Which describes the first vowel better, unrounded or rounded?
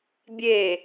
unrounded